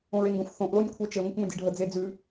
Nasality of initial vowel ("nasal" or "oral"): nasal